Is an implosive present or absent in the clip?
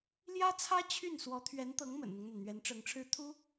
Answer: absent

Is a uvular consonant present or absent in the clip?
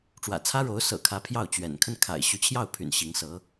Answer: absent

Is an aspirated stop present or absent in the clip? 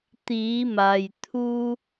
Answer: present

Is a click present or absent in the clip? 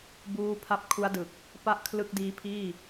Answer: absent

